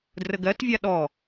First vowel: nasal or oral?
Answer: oral